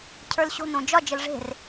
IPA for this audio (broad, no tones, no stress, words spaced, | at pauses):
cʰə˞lɕo̤nõ d͡ʒɒd͡ʒəl ʐe̤r